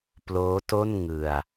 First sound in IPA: p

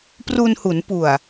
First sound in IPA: p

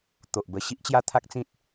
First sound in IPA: t̪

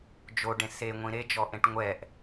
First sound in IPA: d͡ʒ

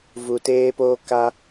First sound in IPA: v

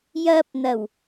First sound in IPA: j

